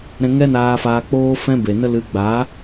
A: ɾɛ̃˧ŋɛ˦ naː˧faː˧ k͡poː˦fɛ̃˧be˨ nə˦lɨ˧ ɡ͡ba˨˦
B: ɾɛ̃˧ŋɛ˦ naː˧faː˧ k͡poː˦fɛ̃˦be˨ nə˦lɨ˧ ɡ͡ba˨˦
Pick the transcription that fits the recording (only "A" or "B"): B